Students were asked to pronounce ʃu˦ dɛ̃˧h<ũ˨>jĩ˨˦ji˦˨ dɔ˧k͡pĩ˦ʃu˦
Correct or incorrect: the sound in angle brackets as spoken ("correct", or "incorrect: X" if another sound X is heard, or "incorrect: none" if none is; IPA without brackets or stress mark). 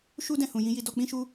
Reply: correct